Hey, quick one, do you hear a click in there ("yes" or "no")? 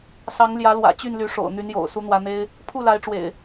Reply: no